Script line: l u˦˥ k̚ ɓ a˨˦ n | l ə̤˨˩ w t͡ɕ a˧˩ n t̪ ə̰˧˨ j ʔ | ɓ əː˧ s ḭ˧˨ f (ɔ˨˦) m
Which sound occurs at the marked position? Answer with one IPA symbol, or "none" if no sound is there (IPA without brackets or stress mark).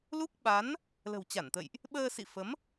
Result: ə˨˦